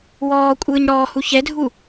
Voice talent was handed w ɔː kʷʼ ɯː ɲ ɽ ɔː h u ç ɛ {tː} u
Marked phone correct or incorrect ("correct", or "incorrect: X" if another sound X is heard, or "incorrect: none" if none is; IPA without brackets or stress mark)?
incorrect: dʱ